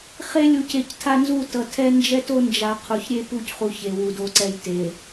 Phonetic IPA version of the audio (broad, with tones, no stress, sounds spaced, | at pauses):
χ e˦ lʲ u˨ c e˨ c tʰ a˦ n z u˦˨ t ʌ˨ tʰ ɛ˦ n d͡ʒ ɛ˦ t o˦ n d͡ʒ a˨ qʰ u˨ ç ɾʲ e˦ p u˦˨ c χ u˨ ç e˨ w u˨ d o˦ ǀ ɛ˦˨ j t e˨